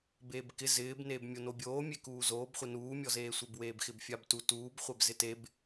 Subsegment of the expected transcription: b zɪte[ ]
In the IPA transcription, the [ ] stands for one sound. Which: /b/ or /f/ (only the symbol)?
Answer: b